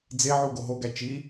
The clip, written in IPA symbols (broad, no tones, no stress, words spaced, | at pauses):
d͡zeʕu ɡoɦoɡæ t͡ʃi